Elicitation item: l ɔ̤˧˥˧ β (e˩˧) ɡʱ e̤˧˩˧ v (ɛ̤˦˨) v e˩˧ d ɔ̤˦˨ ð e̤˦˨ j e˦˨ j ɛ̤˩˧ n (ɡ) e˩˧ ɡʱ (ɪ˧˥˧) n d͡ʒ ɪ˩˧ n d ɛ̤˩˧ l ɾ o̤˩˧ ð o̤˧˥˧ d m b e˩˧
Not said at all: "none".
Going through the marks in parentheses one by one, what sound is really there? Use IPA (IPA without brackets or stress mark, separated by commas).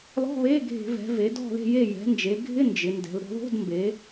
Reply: e˧˥˧, ɛ̤˩˧, d͡ʒ, ɪ˧˥˧